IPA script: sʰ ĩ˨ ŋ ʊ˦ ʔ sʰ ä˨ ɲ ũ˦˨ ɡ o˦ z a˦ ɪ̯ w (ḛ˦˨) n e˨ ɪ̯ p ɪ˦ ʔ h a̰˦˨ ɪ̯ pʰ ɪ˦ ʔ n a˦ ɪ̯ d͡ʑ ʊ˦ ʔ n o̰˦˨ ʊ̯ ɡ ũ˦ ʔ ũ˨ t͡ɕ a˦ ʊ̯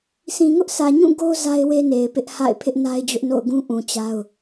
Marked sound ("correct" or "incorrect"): incorrect